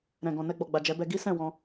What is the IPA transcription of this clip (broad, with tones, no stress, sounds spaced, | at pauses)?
ɾ ɛ̃˨ ɡ ɔ̃˨ n ɛ˧ ɡ͡b ɔ˨ ɡ͡b a˨ d͡ʒ ɛ˨˦ b ɛ˧ ɡ i˦ s ɛ̃˦˨ w ɔ̃˧